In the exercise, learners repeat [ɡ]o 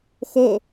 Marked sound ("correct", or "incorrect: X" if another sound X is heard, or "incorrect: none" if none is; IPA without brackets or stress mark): incorrect: x